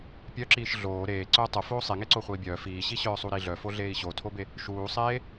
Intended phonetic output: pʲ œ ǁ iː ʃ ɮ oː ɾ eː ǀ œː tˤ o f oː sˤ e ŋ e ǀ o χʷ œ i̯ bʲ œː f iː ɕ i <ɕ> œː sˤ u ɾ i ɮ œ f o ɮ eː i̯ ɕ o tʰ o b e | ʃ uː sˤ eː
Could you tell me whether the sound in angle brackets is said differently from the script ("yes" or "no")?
no